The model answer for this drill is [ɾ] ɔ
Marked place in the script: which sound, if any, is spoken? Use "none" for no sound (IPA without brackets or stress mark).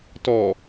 t